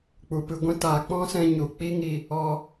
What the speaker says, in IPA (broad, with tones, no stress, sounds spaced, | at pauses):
k͡p u˨ p ɨ˨ ɡʷ ɛ̃˧ t aː˨ k͡p ɔ̃˦ s ɛ̃˧ ɲ u˨ k͡p i˦ ŋ i˧ | ɔ˧